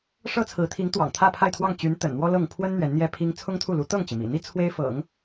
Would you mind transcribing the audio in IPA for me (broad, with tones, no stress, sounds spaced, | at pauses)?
ʂ ɤ˥ t͡sʰ ɹ̩˧˥ t̪ʰ i˧˥ ŋ t̪ w ɑ̰˨˩ ŋ t̪ʰ ä˥˧ pʰ a˥˧ ɪ̯ t̪ʰ w ɑ˥˩ ŋ t͡ɕ y˧˥ n t̪ ə̰˨˩ n n̪ w ɔ˥ l ɤ˥˩ ŋ pʰ w ə˥ n n̪ ɥ ɛ˧˥ n n̪ j ɛ˥ pʰ i˥ ŋ t͡sʰ ʊ˥ ŋ t̪ʰ u˥˩ l u˧˥ t̪ ɤ˥˩ ŋ t͡ɕ i˩ m ḭ˨˩ n̪ i˥ t͡sʰ w e˥ ɪ̯ f ɤ̰˨˩˦ ŋ